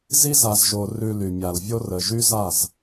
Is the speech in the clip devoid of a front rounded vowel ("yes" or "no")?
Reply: no